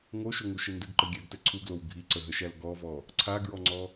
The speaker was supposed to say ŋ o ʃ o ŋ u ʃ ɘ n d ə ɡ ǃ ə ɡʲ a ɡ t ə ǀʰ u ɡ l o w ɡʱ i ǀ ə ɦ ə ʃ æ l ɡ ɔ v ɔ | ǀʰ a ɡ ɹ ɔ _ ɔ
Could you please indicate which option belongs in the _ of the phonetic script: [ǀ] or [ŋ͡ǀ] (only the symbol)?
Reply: ŋ͡ǀ